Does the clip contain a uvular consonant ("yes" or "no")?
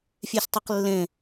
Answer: yes